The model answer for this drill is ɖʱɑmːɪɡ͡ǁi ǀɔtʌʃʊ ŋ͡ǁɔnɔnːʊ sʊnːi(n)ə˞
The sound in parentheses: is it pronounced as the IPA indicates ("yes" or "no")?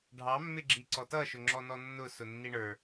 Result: no